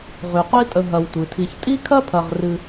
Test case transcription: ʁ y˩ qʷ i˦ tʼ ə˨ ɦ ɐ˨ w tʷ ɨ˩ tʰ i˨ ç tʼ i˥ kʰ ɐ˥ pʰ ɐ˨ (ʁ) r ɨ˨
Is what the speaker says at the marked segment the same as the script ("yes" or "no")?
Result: yes